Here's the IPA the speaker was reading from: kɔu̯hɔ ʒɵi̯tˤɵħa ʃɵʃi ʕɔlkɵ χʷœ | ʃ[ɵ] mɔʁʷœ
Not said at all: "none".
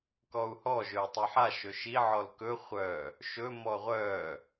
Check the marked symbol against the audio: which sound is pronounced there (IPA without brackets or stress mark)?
ɵ